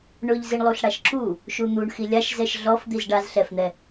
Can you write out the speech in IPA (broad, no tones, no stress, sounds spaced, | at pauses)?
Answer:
ɳ ʊ ʎ z i ɳ lˠ u ɬ ɽ a ʃ ǁ u | ʃ u n̪ u ɳ x i lʲ a ʃ z ɛ ʃ ɮ ɔ f d̪ i z ɖ a z ɬ ɛ f n̪ ɛ